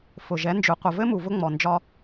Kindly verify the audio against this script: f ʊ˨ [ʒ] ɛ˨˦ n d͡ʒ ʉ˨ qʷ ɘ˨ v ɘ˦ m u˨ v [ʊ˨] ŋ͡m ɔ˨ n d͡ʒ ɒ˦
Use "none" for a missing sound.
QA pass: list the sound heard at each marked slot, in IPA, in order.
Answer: ʒ, ʊ˦

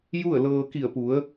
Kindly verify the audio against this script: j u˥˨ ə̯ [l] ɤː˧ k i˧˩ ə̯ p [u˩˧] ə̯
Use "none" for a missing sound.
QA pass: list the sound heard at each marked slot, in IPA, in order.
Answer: l, u˩˧

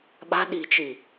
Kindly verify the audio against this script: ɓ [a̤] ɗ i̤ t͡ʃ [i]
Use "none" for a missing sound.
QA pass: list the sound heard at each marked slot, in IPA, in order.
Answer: a̤, i

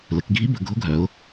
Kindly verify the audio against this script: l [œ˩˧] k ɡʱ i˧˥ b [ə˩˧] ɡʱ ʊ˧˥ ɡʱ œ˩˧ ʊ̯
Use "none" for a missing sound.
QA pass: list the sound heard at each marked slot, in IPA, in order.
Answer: ə˩˧, ə˩˧

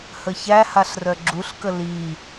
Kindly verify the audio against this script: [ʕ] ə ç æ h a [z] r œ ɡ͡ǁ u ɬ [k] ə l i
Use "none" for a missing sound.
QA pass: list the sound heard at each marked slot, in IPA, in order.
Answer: h, ɬ, k

